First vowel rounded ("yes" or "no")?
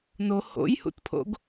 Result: yes